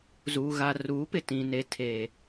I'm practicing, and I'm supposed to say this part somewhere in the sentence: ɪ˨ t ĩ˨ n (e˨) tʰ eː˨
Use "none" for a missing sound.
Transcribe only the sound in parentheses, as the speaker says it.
e˨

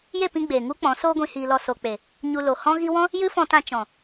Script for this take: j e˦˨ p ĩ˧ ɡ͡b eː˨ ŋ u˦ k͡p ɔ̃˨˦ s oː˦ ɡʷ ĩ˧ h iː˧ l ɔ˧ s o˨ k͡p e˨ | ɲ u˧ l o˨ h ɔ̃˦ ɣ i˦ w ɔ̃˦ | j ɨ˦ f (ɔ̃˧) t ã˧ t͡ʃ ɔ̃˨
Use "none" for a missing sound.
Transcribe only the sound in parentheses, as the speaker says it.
ɔ̃˧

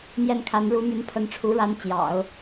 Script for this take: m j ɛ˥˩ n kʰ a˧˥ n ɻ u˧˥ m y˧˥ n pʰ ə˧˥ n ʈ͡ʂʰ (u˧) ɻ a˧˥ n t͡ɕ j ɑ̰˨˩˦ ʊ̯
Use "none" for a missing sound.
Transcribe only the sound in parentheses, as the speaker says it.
u˧˥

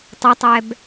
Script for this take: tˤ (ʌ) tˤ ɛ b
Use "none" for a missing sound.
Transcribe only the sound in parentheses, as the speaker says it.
ə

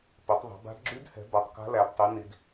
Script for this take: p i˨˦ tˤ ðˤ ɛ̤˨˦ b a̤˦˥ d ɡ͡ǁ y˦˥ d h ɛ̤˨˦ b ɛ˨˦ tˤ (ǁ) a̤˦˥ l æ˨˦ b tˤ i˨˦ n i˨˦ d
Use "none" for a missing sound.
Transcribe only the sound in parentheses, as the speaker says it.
k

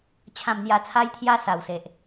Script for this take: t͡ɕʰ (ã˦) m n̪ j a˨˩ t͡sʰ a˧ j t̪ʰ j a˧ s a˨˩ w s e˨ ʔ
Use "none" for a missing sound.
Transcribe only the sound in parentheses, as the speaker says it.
ã˨˩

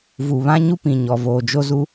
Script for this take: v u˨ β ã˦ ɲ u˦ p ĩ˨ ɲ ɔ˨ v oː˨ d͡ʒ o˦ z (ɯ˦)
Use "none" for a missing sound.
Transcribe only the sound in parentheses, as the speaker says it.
u˦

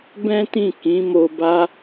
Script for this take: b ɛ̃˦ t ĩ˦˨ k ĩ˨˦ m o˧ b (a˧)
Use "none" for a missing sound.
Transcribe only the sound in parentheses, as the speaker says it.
a˦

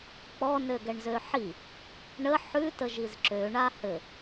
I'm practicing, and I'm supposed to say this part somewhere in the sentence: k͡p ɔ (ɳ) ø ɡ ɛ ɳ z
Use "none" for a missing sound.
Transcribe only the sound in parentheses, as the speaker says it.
n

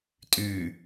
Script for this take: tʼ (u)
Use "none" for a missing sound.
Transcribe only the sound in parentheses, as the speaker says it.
ʉ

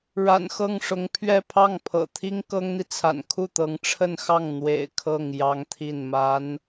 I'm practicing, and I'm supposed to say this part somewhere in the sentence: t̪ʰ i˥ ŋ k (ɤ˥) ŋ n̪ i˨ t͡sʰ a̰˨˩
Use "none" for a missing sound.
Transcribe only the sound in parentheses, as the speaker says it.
ɤ˥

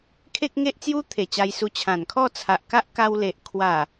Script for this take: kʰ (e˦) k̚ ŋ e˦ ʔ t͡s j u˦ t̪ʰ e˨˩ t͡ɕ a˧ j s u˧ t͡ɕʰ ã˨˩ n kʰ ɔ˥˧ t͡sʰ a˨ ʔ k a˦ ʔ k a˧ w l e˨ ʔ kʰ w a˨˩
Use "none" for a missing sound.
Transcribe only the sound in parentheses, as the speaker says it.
e˦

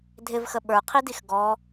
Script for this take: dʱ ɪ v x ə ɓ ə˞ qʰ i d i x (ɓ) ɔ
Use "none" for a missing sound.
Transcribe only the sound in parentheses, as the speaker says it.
ɡ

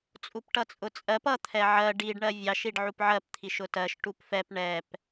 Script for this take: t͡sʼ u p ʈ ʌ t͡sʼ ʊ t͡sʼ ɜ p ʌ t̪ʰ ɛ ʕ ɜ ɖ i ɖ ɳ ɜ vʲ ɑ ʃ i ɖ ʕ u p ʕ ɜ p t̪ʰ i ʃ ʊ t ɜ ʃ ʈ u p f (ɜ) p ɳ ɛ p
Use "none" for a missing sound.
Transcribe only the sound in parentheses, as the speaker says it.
ɛ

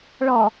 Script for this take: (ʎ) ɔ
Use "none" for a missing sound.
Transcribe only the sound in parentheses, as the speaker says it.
ɭ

